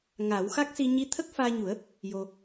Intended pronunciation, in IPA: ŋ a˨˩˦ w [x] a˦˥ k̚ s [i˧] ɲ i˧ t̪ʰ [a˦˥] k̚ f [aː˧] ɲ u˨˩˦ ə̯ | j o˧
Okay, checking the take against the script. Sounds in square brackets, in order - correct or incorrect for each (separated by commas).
correct, correct, incorrect, correct